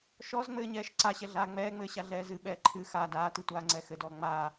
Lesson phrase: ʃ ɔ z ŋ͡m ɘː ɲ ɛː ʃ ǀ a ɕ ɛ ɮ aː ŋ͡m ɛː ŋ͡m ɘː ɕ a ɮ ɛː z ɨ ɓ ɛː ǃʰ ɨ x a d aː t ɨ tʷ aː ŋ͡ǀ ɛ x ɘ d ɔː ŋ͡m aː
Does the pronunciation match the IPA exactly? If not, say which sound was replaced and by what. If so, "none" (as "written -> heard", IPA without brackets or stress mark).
none